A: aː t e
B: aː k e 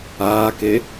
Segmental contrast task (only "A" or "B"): B